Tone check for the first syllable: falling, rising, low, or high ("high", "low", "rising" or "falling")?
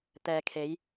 low